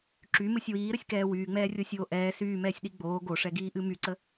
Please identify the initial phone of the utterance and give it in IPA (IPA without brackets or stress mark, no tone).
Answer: ǁ